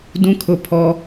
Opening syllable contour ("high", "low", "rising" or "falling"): high